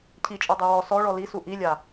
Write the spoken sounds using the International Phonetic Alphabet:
cʰ i t͡ʃʼ ɔ dˤ o w ɔ s ɔ ɭ ɔ l i s u ʔ i lʲ a

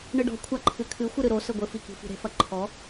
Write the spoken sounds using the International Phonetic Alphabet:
ɳ ɨ ɖ ɔ̤ kʷʰ a ǃʰ ɨ kʰ ɨ xʷ ɨ ɾ ɨ ɾ o s ɘ ɡʷ ɘ f i k i̤ f i̤ ɾ e̤ f ɐ ǃʰ ɔ

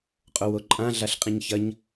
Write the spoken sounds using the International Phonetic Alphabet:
qʼ o w o ǃʼ ã ɮ a ɬ qʼ ĩ ɲ ç ɐ ɲ

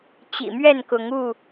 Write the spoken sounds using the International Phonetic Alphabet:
t͡ɕ ḭ˨˩ m ɥ ɛ˥˨ n k ʊ˨˦ ŋ u˥˨

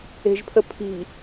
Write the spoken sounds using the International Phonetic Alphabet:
e̤ ʒ pʰ ə pʰ i̤

